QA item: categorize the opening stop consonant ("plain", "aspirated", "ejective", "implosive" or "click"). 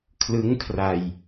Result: aspirated